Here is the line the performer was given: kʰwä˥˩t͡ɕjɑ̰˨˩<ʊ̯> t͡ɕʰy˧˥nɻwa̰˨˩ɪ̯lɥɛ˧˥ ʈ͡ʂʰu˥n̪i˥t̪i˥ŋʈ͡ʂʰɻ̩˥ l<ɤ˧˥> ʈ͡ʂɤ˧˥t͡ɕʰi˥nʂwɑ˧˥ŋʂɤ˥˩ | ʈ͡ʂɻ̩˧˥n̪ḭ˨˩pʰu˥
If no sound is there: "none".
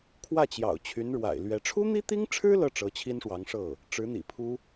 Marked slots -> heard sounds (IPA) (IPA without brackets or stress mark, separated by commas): ʊ̯, ɤ˥